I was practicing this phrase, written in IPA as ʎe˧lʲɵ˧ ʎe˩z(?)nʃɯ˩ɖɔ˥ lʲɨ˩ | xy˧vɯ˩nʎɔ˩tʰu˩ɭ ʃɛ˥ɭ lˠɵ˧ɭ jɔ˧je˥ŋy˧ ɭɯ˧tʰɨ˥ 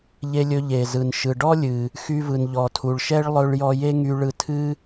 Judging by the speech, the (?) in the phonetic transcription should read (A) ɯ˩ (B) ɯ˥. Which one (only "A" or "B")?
A